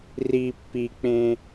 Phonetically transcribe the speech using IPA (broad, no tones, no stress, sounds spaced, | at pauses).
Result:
r i pː i k͡p ẽ